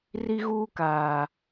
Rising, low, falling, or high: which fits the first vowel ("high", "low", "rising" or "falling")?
high